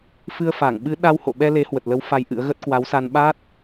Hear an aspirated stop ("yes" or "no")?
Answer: no